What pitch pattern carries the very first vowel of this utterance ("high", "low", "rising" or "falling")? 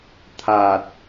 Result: low